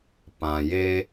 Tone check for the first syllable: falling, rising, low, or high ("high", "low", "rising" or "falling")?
low